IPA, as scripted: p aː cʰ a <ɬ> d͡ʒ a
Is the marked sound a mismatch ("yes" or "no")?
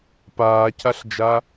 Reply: no